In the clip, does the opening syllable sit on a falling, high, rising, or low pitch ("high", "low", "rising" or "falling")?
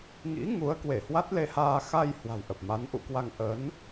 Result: rising